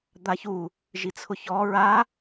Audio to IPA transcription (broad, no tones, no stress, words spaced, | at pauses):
d̪açu | ʒit͡sʰʊçɔ ɹa